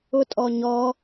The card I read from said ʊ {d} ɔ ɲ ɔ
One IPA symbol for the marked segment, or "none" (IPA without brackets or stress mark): tʼ